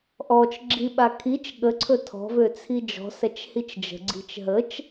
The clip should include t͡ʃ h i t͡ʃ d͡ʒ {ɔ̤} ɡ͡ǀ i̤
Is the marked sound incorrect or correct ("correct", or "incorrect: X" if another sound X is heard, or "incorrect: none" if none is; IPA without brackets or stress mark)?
incorrect: ə̤